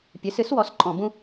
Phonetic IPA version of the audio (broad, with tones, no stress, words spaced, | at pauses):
pʲɨ˩˥sɨ˩˥s wɔ˩˥sǃʼɔ̃˧˩˧ bũ˥